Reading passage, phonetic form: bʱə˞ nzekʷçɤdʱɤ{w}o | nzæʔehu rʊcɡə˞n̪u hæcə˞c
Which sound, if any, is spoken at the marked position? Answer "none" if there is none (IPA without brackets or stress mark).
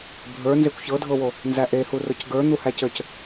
w